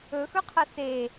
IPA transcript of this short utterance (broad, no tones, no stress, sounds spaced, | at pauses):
ɵ x ɵ qʰ ɐ s e